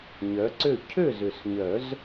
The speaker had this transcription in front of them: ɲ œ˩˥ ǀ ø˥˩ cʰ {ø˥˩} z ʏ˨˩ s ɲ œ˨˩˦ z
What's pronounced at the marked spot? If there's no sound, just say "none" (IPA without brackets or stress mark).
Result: ø˥˩